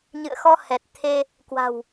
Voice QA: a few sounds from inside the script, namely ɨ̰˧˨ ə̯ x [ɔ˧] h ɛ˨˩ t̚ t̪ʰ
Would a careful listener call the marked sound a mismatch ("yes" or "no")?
no